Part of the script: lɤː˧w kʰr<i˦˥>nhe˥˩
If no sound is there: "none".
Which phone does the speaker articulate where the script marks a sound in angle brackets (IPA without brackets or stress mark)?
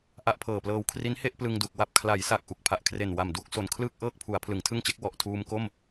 i˦˥